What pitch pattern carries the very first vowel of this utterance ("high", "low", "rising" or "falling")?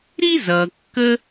high